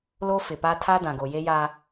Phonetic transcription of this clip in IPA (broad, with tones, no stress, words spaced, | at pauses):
lo˦fɪ˨pa˦ tʰa˦ dã˨ɡo˨je˦jaː˦